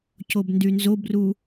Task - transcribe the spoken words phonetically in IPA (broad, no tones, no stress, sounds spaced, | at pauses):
c o b n d y n z o b r u